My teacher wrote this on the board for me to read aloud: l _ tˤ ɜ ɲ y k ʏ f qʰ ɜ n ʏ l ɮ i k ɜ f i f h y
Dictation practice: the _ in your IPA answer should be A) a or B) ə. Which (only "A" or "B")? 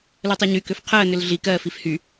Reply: B